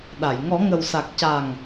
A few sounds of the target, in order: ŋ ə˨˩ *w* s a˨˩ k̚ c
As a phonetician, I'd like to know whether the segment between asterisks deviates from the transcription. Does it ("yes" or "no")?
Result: no